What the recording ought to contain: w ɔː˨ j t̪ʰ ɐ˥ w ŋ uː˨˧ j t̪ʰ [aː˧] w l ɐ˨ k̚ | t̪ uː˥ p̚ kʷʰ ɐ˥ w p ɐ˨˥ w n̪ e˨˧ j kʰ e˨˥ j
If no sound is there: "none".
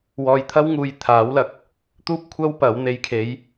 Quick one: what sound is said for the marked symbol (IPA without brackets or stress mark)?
aː˨˥